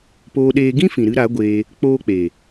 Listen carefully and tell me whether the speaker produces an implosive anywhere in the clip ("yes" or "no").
yes